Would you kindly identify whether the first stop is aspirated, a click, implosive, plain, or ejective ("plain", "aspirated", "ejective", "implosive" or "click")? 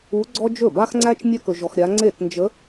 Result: click